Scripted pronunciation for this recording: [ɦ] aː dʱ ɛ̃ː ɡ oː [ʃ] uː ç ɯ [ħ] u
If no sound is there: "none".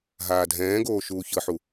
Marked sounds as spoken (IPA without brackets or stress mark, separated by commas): ɦ, ʃ, ħ